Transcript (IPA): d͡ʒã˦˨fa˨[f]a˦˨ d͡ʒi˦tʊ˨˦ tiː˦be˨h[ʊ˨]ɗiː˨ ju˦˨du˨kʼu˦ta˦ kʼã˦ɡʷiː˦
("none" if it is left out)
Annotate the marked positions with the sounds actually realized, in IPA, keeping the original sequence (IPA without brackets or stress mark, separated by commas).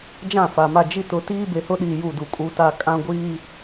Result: m, ʊ˦